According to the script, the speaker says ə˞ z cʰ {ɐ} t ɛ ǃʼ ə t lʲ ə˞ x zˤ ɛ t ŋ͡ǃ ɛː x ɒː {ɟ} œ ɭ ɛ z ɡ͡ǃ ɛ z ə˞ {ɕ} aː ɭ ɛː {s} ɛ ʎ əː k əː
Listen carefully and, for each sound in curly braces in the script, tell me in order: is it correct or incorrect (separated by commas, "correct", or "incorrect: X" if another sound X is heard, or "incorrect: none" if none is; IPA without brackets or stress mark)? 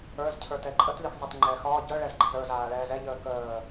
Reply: incorrect: ə˞, correct, incorrect: z, incorrect: z